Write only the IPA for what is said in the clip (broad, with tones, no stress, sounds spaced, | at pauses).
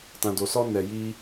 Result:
t ã˧ d o˧ s ɔ˦ n ɛ˧ j i˦